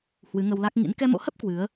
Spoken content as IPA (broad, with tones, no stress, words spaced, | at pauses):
hwɨ˨˦ŋə˧wla˦˥k̚ ŋḭ˧˥n kɛ˧mo̰˧˥hə˦˥p̚ kwɨ˨˦ə̯